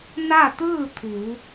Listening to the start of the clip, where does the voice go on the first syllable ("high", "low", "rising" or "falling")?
falling